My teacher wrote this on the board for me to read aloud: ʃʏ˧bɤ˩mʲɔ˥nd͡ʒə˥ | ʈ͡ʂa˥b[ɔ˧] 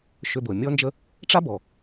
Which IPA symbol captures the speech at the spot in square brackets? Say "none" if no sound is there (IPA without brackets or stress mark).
ɔ˩